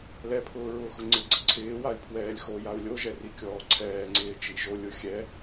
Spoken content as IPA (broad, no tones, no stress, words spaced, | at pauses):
lɛpʰʊː ɹʊːxʊŋ͡ǀɪɡ͡ǀɪ ǀʰɪːwai̯ pʰwɛːlʲxojau̯ lʲoʒɛ rikʲɔːǀʰɛːŋ͡ǀɪː t͡ʃiʒolʲʊ xʲɛ